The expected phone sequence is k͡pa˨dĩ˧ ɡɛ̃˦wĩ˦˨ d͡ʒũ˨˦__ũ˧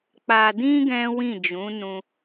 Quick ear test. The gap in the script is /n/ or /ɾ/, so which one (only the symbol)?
n